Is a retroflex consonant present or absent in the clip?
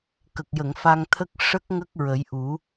present